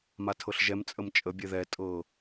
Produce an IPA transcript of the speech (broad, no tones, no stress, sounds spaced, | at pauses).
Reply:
m a tʰ ɤ ɬ ʒ ɛ m t͡sʼ ə m t͡ʃʼ ə bʲ ɛ ð ɛ tʼ ɤ